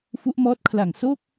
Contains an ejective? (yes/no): no